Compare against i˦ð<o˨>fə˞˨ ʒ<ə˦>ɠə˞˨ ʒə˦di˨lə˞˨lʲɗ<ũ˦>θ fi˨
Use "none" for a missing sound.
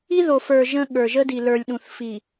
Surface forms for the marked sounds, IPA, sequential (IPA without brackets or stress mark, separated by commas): o˨, ə̃˦, ũ˨